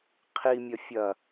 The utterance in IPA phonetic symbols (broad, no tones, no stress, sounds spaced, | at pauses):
qʰ i mʲ ɐ fʲ ɐ